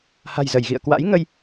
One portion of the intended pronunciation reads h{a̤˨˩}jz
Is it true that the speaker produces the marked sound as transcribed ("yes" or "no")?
yes